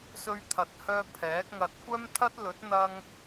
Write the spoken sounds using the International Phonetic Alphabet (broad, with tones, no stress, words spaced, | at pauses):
sɵ˧ɥt̪ʰɐ˨˥t̚hœː˧ pʰɛː˨˥k̚ŋɐ˧t̚ kʷœː˥mt̪ʰɐ˥t̚ lɵ˨˥t̚n̪ɐ˧ŋ